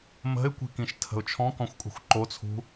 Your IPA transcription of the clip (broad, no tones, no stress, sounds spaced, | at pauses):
m ə̤ ɪ̯ kʷ i̤ k ĩ ʃ tʰ ə̤ ʊ̯ t͡ʃʰ ɔ̃ k ɔ̃ xʷ kʼ ṳ xʷ ǃ o t͡sʰ ṳ